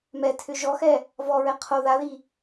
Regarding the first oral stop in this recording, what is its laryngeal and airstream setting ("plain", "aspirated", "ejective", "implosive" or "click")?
aspirated